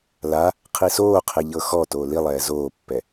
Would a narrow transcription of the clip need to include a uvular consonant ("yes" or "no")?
yes